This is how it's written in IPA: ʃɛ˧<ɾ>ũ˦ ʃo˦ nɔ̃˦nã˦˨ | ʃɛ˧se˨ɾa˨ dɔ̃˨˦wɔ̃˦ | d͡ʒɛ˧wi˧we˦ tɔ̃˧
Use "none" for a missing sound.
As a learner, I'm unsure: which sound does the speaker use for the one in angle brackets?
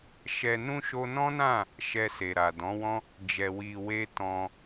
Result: n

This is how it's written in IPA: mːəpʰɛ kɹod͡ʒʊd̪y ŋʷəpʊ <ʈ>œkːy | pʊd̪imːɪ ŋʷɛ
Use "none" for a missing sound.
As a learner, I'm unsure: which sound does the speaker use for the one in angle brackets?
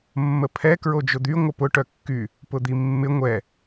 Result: ʈ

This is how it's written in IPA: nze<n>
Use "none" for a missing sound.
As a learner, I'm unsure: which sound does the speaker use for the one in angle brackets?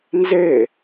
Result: none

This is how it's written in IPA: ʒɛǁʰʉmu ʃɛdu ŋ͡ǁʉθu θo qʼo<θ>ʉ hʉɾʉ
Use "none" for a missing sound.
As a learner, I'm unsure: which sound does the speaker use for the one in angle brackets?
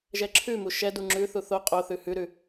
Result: θ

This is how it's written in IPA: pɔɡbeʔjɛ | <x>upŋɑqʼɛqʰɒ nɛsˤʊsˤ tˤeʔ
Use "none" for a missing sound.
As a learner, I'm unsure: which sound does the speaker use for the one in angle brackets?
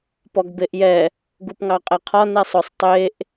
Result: ɡ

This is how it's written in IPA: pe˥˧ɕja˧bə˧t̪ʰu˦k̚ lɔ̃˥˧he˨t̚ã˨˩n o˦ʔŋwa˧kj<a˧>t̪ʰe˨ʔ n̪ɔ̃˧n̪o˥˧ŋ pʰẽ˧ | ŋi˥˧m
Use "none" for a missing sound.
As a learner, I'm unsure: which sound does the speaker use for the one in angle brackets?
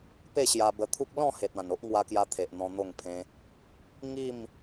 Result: a˧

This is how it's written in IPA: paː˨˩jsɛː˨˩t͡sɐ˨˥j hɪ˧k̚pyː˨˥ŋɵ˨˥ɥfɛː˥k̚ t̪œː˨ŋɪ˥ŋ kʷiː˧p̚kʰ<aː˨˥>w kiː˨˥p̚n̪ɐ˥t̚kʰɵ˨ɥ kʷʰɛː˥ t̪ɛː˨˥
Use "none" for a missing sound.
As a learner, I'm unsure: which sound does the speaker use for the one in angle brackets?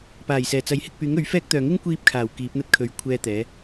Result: aː˨˩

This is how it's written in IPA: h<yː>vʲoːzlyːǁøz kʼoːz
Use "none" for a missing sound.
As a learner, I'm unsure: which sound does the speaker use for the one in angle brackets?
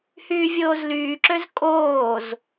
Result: yː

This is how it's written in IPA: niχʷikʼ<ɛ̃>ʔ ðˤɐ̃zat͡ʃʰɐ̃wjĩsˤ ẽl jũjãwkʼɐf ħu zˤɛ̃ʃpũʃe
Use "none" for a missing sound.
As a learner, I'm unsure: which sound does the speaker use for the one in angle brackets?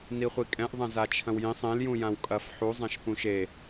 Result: ɛ̃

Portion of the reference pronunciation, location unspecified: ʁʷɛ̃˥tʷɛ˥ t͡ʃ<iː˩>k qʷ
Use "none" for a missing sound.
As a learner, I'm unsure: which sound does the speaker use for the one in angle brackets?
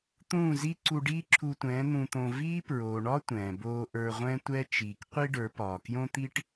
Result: iː˩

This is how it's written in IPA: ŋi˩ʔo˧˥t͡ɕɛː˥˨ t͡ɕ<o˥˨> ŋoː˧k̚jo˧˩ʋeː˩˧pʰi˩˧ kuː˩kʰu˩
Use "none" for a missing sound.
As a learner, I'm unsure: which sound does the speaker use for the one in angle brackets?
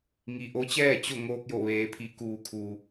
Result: o˥˨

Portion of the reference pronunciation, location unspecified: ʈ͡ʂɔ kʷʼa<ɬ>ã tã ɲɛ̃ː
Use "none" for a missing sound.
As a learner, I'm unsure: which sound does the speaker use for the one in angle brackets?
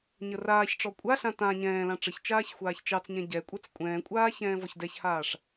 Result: ɬ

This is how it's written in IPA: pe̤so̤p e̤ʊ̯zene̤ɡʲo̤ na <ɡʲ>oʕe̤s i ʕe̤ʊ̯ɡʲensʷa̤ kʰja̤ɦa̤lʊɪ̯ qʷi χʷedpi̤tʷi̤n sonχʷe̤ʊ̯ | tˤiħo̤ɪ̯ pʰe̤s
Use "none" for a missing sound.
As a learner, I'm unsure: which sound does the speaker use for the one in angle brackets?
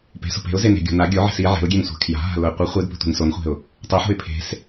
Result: ɡʲ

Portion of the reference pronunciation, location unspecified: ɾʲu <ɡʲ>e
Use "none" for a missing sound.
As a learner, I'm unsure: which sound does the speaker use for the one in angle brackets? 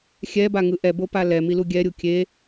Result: kʲ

